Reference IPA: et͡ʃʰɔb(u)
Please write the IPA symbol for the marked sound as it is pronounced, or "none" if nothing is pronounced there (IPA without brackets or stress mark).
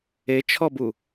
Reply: u